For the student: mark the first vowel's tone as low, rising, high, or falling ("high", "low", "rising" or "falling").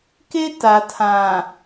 high